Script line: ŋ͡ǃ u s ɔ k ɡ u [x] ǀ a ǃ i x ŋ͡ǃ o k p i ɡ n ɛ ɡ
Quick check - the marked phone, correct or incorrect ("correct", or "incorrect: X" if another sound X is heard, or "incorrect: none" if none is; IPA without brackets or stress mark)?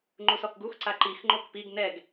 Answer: correct